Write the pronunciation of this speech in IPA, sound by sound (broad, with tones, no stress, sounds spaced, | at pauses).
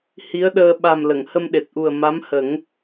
h i˧˥ ə̯ ɗ əː˧ ɓ a˨˩ m l ə˨˩˨ ŋ h ə˧ m ɗ e˨˩ t̚ ʔ u˨˩ ə̯ m a˧˥ m h ə˨˩˦ ŋ